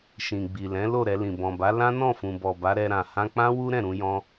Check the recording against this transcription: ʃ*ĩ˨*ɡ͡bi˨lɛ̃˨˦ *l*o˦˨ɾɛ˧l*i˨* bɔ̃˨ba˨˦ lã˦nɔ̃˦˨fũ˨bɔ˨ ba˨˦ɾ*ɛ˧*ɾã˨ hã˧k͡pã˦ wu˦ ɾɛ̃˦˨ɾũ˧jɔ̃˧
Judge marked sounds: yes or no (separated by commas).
yes, yes, no, yes